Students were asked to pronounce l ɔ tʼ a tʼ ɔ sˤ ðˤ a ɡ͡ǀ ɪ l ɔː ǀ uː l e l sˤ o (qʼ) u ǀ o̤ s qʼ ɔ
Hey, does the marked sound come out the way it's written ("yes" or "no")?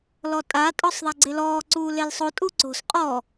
no